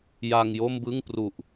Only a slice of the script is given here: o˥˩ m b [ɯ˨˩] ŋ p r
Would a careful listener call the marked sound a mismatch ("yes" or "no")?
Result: yes